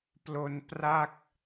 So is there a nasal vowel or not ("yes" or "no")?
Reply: no